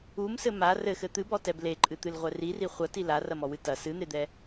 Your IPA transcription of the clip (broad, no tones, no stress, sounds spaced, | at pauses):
u m s ɘ m a r ɘ x ɘ t̪ ɨ b ɔ t ɛ b l e ǃʼ ɨ t̪ ɨ l ʁʷ ɛ r i r i χʷ ɐ t i l a r ɐ m ɔ w ɨ t ɐ s ɨ n̪ e d̪ ɛ